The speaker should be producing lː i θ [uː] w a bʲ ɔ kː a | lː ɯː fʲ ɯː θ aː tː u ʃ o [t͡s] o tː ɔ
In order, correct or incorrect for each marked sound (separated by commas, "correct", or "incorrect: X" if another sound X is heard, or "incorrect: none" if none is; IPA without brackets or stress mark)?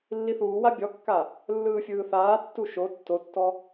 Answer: correct, incorrect: tː